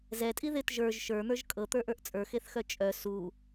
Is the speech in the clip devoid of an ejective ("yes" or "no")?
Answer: no